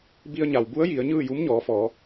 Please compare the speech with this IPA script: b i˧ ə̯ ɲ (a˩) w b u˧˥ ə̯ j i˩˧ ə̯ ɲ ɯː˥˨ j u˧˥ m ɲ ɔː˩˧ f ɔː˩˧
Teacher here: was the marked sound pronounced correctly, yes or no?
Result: yes